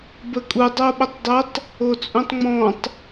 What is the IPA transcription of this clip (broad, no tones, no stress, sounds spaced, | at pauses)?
b ə kʼ u dˤ o ɓ ə tˤ dˤ ʊ tˤ | o t͡sʼ ũ tˤ ŋ͡m ɔ̃ tˤ